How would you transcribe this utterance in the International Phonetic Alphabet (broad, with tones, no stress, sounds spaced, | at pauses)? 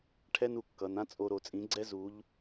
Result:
ʈʰ ɛ˥ n u˩˧ kː ʌ˩˧ n ã˥ t͡sʼ o˧ ɾ o˩˧ t͡sʼ ĩ˩˥ ɡ͡ǀ ɛ˥ z u˧˥ ʎ